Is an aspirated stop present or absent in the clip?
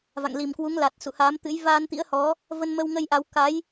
absent